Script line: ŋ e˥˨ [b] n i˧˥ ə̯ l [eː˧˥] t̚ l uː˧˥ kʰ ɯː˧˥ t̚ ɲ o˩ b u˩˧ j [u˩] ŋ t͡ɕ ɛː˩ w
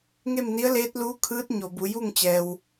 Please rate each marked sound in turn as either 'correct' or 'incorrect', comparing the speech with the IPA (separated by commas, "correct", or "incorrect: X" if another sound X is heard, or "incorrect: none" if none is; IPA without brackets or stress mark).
incorrect: m, correct, incorrect: u˥˨